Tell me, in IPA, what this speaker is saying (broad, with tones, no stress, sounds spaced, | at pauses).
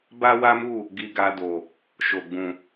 b a˦ w a˦ m u˦˨ | ɡ i˧ ɡ a˧ d o˨ | ʃ o˨ ɡ͡b ũ˨